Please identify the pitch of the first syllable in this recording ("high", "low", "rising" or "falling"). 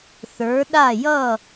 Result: rising